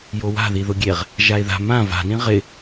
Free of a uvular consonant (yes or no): no